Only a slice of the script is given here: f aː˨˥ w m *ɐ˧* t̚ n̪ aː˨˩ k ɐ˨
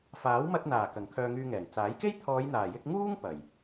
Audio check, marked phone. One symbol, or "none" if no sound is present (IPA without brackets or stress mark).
ɐ˧